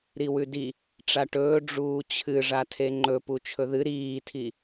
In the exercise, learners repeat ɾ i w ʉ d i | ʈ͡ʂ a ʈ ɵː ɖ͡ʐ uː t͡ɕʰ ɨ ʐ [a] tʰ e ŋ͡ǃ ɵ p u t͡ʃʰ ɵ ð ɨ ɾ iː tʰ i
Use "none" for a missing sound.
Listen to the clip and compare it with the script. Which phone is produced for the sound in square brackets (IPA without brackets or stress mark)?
a